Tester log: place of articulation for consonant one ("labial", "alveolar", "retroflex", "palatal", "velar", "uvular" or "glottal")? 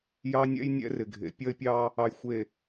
palatal